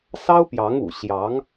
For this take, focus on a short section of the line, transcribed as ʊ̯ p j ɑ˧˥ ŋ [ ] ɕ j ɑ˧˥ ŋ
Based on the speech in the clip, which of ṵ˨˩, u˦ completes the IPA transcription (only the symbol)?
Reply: ṵ˨˩